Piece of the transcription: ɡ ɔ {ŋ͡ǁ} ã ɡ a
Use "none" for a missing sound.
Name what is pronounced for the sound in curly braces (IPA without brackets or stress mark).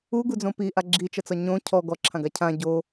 ǁʰ